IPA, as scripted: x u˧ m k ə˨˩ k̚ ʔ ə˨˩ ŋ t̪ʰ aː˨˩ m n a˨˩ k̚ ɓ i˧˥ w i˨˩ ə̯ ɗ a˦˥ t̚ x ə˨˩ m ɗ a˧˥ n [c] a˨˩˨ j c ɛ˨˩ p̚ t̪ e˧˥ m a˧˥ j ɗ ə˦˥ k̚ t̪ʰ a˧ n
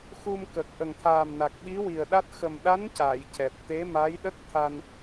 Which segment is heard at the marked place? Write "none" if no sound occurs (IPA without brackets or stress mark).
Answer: c